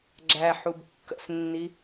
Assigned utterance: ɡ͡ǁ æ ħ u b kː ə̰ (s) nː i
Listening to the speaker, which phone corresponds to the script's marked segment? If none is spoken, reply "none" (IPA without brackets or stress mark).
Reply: s